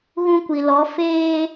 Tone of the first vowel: high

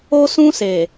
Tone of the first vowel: high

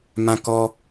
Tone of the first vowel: high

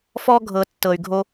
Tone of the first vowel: high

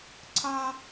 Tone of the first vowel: high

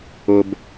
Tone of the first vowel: low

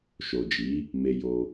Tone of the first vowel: low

